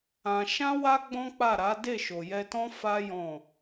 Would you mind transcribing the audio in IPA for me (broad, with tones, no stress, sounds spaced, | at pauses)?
ã˧ ʃ ã˦ w a˦ ɡ͡b ɔ̃˦ k͡p a˦˨ ɾ a˨˦ d e˦˨ ʃ o˨ j ɛ˧ t ɔ̃˦ f a˦ j ɔ̃˦˨